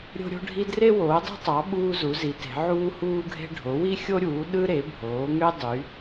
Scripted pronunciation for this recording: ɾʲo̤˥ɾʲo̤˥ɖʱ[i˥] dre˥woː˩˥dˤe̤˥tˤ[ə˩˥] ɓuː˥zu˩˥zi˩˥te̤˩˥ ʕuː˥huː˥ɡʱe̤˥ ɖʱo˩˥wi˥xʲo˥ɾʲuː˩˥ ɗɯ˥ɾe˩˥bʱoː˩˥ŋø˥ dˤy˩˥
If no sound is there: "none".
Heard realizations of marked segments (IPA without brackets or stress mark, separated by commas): i˥, ɑ˩˥